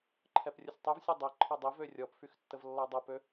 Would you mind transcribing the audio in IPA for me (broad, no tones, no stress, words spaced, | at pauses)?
ǃʰɛprʲəsʲtˤyvsʲɛ dˤɛǃʰɔ dˤivø rʲɔpfyx tːəvlːɔdˤopø